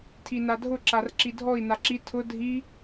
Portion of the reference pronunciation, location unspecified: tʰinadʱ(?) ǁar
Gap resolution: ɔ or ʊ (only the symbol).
ʊ